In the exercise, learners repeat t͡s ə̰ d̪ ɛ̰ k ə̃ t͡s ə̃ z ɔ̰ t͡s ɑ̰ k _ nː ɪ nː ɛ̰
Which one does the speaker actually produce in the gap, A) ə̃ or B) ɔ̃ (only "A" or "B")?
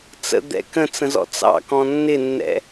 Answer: B